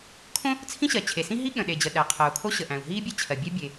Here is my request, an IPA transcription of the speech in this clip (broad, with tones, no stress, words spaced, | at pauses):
kʰõ˥ | t͡sʰĩ˥ɕɜ˩ t͡ɕʰe˩ sĩ˥ɦi˥ ɠə̃˩ɗe˩ d͡ʑə˩ ɗæ˩ qʰəː˩u̯kʰo˥ɕə˩ʔæ̃˩u̯ ɦiː˥bʲæ˥ t͡ɕʰɜ˩bʲɛ˥ bʲe˩